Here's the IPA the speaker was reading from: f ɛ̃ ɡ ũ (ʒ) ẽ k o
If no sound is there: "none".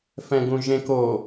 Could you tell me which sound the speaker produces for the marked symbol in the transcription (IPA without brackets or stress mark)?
ʒ